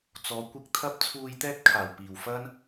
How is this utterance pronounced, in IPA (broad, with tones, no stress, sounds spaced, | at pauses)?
t͡s ɔː˨˧ kʷ ɪ˧ k̚ t̪ʰ ɐ˥ p̚ t͡sʰ uː˧ j t̪ ɛː˥ t̚ kʰ aː˨˩ w p iː˨˩ w f ɐ˥ n